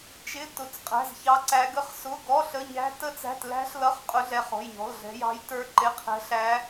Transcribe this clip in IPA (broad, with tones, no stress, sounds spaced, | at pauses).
t͡ʃ ɪ˧˥˧ t ʊ˧˥˧ t͡s qʼ æ̤˧˥˧ z ç ɑ˦˥ ǀ æ˦˥ ɡ ə˦˥ χ s ʊ˧˥˧ ɡ ɔ˧˥˧ ɬ ə˧˥˧ ɲ æ̤˦˥ t ə˦˥ t͡s æ̤˧˥˧ t l æ̤˦˥ ɬ l ʌ˧˥˧ χ qʼ ʊ˦˥ ɮ ɛ˦˥ χ ɔ̤˧˥˧ j ɲ ɔ̤˧˥˧ l ɮ ɛ̤˦˥ j ɑ̤˦˥ j t ə˞˦˥ ǃ ɪ˧˥˧ qʰ ɛ̤˦˥ ɬ æ˦˥